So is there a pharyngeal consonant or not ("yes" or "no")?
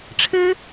no